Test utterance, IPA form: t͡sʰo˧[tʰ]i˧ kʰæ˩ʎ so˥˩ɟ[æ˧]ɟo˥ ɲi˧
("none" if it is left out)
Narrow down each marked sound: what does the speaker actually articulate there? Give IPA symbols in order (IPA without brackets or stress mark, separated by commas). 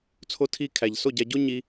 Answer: tʰ, æ˧